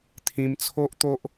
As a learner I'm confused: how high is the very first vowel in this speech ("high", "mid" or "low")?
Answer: high